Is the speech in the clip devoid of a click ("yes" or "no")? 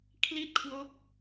yes